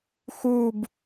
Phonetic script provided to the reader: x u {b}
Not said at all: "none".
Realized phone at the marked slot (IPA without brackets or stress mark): b